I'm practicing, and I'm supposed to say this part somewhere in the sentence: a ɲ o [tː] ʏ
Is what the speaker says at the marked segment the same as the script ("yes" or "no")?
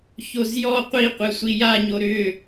no